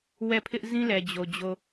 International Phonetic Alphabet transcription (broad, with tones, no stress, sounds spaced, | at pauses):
w ɛ˦˨ pʰ ɪ˦ ʔ z ĩ˦ l ɛ˨ d͡ʑ o˨ d͡ʑ o˨